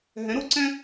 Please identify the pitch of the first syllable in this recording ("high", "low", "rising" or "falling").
rising